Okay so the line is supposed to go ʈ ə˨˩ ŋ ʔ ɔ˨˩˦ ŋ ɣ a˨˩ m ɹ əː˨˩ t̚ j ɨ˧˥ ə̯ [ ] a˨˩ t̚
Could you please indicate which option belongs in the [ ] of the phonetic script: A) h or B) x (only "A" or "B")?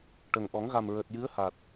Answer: A